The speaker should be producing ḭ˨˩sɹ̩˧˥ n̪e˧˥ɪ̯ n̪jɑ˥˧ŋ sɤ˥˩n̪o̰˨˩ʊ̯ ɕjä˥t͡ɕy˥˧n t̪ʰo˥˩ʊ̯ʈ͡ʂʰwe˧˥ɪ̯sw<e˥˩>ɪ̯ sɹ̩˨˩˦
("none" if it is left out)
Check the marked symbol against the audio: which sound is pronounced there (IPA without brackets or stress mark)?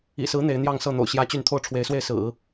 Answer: e˥˩